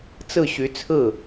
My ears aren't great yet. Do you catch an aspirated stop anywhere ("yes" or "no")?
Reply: yes